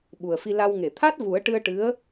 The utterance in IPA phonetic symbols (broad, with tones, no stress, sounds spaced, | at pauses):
ɓ u˨˩ ə̯ f i˧ l a˧ w ŋ e˨˩˨ t̪ʰ a˦˥ t̚ v u˨˩˦ ə̯ ʈ ɨ˧ ə̯ ʈ ɨ˧˥ ə̯